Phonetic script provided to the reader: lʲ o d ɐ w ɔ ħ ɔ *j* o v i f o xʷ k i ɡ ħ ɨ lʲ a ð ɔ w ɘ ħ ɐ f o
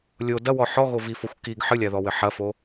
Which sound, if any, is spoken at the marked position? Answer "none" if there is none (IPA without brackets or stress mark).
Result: ɣ